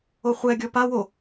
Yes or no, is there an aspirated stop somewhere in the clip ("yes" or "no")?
no